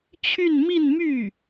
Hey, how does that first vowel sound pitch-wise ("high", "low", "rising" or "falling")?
falling